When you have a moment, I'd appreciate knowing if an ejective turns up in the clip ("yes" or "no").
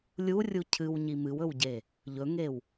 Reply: no